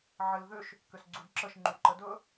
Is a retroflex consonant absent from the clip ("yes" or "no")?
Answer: yes